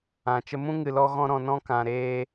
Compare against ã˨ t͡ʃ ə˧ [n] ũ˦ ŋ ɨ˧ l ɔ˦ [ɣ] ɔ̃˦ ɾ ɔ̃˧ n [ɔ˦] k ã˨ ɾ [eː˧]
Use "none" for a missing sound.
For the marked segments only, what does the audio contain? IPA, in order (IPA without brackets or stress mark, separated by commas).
m, ɣ, ɔ̃˦, eː˦